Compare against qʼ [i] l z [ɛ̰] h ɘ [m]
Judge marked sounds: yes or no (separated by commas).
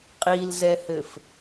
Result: yes, no, no